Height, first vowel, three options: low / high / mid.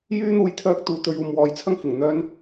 high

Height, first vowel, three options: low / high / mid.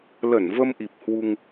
mid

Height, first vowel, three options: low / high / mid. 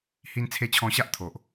high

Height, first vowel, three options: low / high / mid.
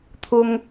high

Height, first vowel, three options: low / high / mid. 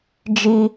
high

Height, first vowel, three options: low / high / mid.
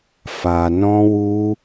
low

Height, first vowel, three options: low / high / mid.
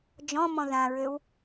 mid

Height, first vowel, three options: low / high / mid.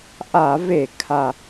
low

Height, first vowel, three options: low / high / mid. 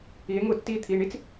high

